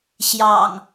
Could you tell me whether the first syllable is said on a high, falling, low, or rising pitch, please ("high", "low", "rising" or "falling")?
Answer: low